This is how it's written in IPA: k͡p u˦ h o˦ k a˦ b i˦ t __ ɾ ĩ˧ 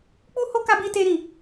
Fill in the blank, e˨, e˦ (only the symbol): e˦